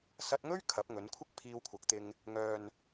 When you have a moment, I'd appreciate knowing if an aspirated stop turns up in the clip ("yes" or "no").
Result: yes